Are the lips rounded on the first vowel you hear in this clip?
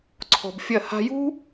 yes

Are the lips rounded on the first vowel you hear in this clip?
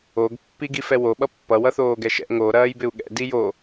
yes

